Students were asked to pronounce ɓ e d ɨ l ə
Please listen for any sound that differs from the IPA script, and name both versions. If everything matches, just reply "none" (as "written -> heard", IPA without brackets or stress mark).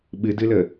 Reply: e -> ɨ